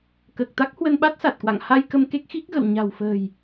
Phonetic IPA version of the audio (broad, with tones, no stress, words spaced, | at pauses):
kəː˨˩k̚t̪a˦˥k̚hwə˧nɓa˦˥t̚ sa˨˩t̚kwa̰˧˨ŋha˧j kə˧mke˦˥k̚ xi˦˥k̚ɣə̰˧˨w ɲa̤˨˩wfə̤ː˨˩j